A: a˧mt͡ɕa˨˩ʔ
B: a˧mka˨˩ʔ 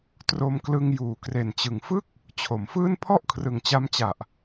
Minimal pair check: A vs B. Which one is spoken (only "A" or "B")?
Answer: A